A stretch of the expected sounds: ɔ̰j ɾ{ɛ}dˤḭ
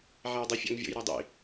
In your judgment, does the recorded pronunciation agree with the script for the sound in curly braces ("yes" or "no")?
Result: no